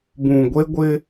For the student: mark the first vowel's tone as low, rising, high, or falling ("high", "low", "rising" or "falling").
low